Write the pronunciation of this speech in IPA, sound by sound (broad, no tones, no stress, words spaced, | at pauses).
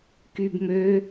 kyb mø